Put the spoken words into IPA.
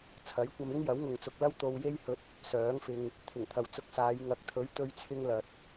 t͡sʰ ɐ˨˥ j kʷ ɐ˧ m ɪ˥ ŋ j ɐ˨˥ w ŋ ʊ˨ ŋ t͡s ʊ˨ k̚ l ɐ˥ w t̪ o˧ w j e˥ j h ɵ˧ t̚ | s œː˨˥ ŋ f ɪ˧ ŋ | t̪ʰ ɪ˨˩ ŋ t̪ʰ ɐ˨ w t͡s ʊ˧ k̚ s aː˨˧ j ŋ ɐ˨ k̚ t̪ʰ ɵ˨˥ ɥ t̪ ɵ˧ ɥ t͡sʰ ɪ˧ ŋ l ɐ˨ t̚

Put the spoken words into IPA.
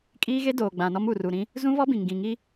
kʼ iː˦ ɣ e˦ d oː˨ ɡ͡b ã˨ n ɔ˦ m u˨ r u˨ ɾ ĩ˦ | z ũ˦ β ɔ˦ b ĩ˨ ŋ ɡ ĩ˨ ŋ i˦

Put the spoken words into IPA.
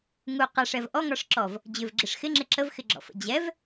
ŋ u q a ʂ ɛ v ʔ ɔ ŋ ɒ ʂ ǁ ɔ v | d͡ʑ ʏ v ɡ͡ǁ ɪ ʂ x ɪ ŋ͡ǁ ɪ ǁ ə v x ɪ ɡ͡ǁ ɔ̰ f ə̰ d͡ʑ ɛ v

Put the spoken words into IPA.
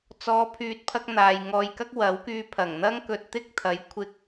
t͡s ɔː˨˧ pʰ yː˨ t̚ pʰ ɐ˧ k̚ n̪ aː˨ j ŋ ɔː˧ j k ɐ˥ k̚ w ɐ˨˥ w k yː˧ pʰ ɐ˨˩ ŋ n̪ ɐ˥ ŋ k ɵ˧ t̚ t̪ ɪ˥ k̚ t̪ʰ ɐ˨˧ j kʷʰ ɪ˧ k̚

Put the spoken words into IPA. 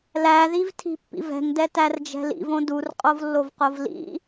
l æ ð i v tʰ i̤ pː ḭ v ɛ̤ ŋ d ɛ t æ r d͡ʒ ɛ̤ l ḭ v õ d u r qʼ o v lː o v q o v l ḭ

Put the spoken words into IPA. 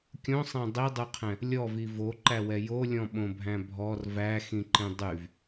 kʲ õ sˤ æ̃ dˤ i dˤ u qʰ ɛ̃ | lʲ ɔ v i v o ǃ æ w ɛ j o lʲ ɔ̃ ɓ õ bʱ æ̃ bʱ ɔ r v æ x ĩ ǃ ĩ dˤ y v

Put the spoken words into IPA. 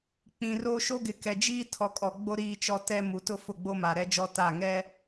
k͡p ĩ˨ r o˦ ʃ o˦ ɡ ɪ˨ k ɛ˨ d͡ʒ iː˦ tʰ ɔ˨ kʼ ɔ˨ ɡ͡b o˦ ɾ iː˦ t͡ʃ ɔ˦ t ɛ˦ m u˨ t ʊ˦ f ʊ˦˨ ɡ͡b o˦ m a˨ ɾ ɛ˦ d͡ʒ ɔ˦ t a˦˨ ŋ ɛ˦

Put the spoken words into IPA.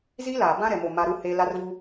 z i˦ l aː˨ b ã˦ ɾ ɛ˨ m o˨ m a˦ ɾ u˦ h eː˦ l a˦ r v u˦

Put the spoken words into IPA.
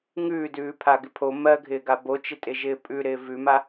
ŋ ʉː d ʉː pʰ a ɡ ɪ pʰ o m ɜ ɡʱ ɪː ɡ a b o t͡ʃ ɪ tʼ ɪ ʒ ɪː pʼ ʉ ɾ ɪː v ʉ m a

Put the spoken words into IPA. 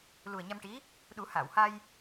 l u˨˩ ə̯ ɲ a˧ m ʈ i˧˥ | ɗ u˨˩˦ h aː˨˩˨ w h a˧ j

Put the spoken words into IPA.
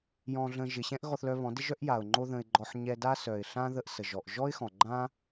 j ɔ̃˧ ɮ ə̃˧ ʒ ɪ˨ ɕ ɛ̃˦ ʔ ɣ ɔ˧ θ l œ˧ β ɔ̃˨˦ d ɪ˦ ʒ œ˦ ʔ j a˨ ʊ̯ ŋ͡ǃ o˦ ð ə̃˧ ɪ̯ ɡ͡ǃ ɔ˧ ħ ɲ ɛ˧ d a˦ s œ˨ ɪ̯ ɬ ã˦ ð ə˧ ʔ s ə˨ ʒ ɔ˨ ʔ ʒ ɔ˦ ɪ̯ x ɔ̃˨ ɡ͡ǃ ã˦

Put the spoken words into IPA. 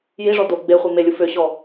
j i ʐ ɔ d o ɡ͡b e χʷ i m e lʲ u f ø ɕ ɔ

